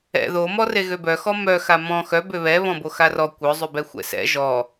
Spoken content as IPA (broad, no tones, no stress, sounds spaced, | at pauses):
ɛ̰ ð o m ɔ r e ɣ ø b œ x ɔ m œ x a m ɔ̃ x œ b ø β ɛ β ɔ̃ b o x a r ɔ kʷ œ zˤ y b ɛ xʷ ɛ̰ s ɛ̰ ʒ ɔ